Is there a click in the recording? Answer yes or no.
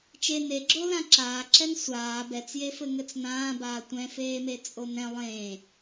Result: yes